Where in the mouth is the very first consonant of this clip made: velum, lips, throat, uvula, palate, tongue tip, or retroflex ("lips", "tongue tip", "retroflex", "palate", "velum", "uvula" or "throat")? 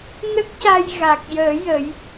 tongue tip